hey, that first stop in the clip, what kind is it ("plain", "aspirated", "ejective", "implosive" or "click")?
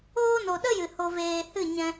implosive